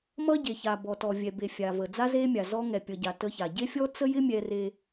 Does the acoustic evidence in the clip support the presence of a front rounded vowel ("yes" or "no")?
no